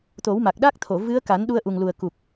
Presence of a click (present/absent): absent